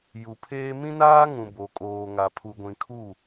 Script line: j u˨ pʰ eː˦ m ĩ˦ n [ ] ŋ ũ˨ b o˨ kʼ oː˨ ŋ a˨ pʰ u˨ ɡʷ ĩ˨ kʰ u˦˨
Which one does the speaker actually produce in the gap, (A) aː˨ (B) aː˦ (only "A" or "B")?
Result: B